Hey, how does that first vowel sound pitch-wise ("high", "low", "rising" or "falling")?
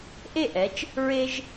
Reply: falling